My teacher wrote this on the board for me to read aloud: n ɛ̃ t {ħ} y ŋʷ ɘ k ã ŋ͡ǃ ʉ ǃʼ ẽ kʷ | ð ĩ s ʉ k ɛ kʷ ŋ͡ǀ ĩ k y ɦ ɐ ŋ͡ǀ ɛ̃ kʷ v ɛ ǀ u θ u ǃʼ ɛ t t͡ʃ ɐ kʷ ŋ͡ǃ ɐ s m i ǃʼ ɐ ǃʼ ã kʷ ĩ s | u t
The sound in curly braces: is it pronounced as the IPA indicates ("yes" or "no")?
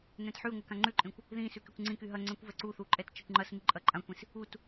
yes